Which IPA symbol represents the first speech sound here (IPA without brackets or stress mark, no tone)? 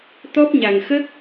t̪